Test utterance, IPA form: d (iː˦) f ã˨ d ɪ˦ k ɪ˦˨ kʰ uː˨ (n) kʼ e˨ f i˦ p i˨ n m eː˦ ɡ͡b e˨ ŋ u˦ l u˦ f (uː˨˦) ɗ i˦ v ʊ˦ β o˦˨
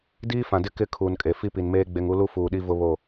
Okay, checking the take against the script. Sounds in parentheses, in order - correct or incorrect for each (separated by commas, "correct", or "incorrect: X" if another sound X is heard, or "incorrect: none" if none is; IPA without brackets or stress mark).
correct, correct, incorrect: uː˨